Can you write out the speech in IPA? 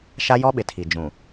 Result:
ʃ a˦ j ɔ˦ ɓ ɪ˨ tʰ i˨ d͡ʒ ũ˨

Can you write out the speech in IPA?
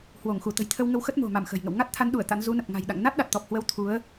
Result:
h w o˧˩ ŋ x u˧˩ t̪ ə̤˨˩ j t̪ʰ ə˧ w ŋ ə˧ w x ə˦˥ t̚ m o̤˨˩ m a˧˩ m x ə̤˨˩ j ŋ ə̰˧˨ w ŋ a˦˥ t̚ t̪ʰ a˨˦ n ɗ u˧˩ ə̯ t̪ a̰˧˥ n z u˨˦ n ə˨˩ p̚ ŋ a̤˨˩ j ɗ a̰˧˨ ŋ n a˦˥ t̚ ɗ a˨˩ t̚ t̪ ɔ˨˩ p̚ h w ə˨˦ w t̪ʰ u˨˦ ə̯

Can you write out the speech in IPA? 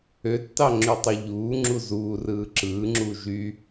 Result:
ø tː ɑ ŋ͡ǁ y tˤ u ʎ uː ŋ͡ǁ u z uː r ɯː ǁ ɯː ŋ͡ǁ u ʒ y

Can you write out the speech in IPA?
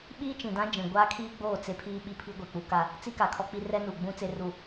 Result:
ɓ iː˦ t͡ʃ ĩ˨ d ã˦ d͡ʒ ĩ˨ ɡʷ aː˦ kʰ iː˦ ɡ͡b oː˦˨ t͡s e˦ pʰ iː˦ ɓ i˦ pʰ i˦ ɡʷ e˨ k͡p u˦ k a˦ | t͡s i˦ k a˨ kʰ ɔ˦ k͡p i˦ r ɛ˦ n u˨ ɡ͡b ũ˦ t͡s e˦ r u˦˨

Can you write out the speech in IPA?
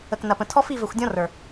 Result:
ə˨ k n ɐ˨ p ə̃˨ tʰ ɔ˦ f i˦˨ v ɘ˨ xʷ dʲ ɔ̃˦ r ə˞˨

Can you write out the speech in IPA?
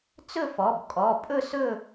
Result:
t͡s ɵ˥˧ f ɔ˩˧˩ b kʼ ɔ˩˧˩ pʼ ɵ˥˧ s ɵ˥˧

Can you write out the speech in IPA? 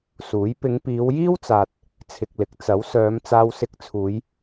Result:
s uː˨˥ j p ɪ˨˧ ŋ p iː˨˧ w j iː˥ w t͡s aː˨ t̚ | t͡sʰ ɪ˧ k̚ l ɪ˨˥ k̚ t͡s ɐ˨˥ w s œː˨˧ m t͡s aː˧ w s ɪ˧ k̚ t͡sʰ uː˨˧ j

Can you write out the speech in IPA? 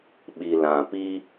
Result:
ɓ i˨ l ã˨ p i˦

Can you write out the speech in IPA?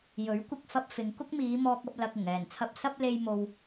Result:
j ɵ˨˥ ɥ kʷ ɪ˧ k̚ f ɐ˧ p̚ f ɪ˨˧ ŋ k ʊ˥ k̚ m iː˨˧ m ɔː˧ k̚ ɐ˧ p̚ l ɐ˨ k̚ ʊ˨˩ ŋ ɛː˨˩ n t͡sʰ ɐ˨ p̚ s ɐ˧ p̚ l e˧ j m o˨ w

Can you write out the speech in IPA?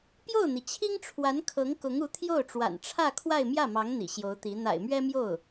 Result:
p j o˥˩ ʊ̯ n̪ i˩ t͡ɕʰ i˥ ŋ ʈ͡ʂʰ w a˧˥ n kʰ ɤ˧˥ ŋ k ʊ˧˥ ŋ u˧˥ t̪ʰ j o˥˩ ʊ̯ ʈ͡ʂ w a̰˨˩ n ʈ͡ʂʰ ä˥˧ kʰ w a˥˧ ɪ̯ m j ä˥˩ m ɑ˧˥ ŋ n̪ ḭ˨˩ ɕ j o˧˥ ʊ̯ t̪ i˧˥ n̪ a̰˨˩ ɪ̯ m ɥ ɛ˥ m j o˥˩ ʊ̯

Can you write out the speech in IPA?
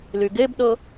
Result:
l y ɡ e b ɗ ɤ

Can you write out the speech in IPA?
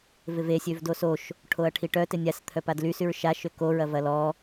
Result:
v ɪ v e sʲ ø v d o s o ʃ | ʈʰ o ɐ̯ ʈʰ i ʈ œ t ɪ nʲ a s t̪ʰ œ p a d l y s y ɹ ʃ a ʃ ø k o ɹ ɐ v ɐ l ɔ

